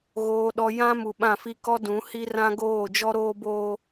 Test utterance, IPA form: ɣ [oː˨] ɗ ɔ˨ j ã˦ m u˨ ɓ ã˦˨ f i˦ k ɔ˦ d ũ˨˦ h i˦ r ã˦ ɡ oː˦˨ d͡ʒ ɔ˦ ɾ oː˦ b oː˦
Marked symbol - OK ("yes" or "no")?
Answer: yes